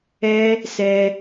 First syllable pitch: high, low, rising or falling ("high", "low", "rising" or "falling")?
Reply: high